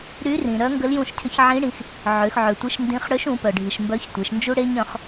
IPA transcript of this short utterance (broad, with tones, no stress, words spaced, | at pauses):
ɾy˧˥rĩ˩ ɾœ˧˥ŋɡə˧˥ljũ˧ʃ cʰə˧˥çʕĩ˧˥ɽĩ˩˧x | ʕø˩˧xʕø˩tʷi˧˥ʃ ndĩ˧˥χ ɽø˧˥ʃũ˩˧pœ˩ɖʱi˩ʃ mbœ˧˥çtʷe˩˧ʃnd͡ʒu˥ ɽe˥ɲœ̃˩˧χ